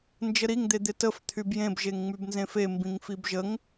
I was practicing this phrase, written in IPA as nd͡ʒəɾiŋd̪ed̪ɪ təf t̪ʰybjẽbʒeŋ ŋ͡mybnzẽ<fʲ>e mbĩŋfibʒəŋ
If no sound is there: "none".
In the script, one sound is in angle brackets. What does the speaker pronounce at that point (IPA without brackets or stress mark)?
f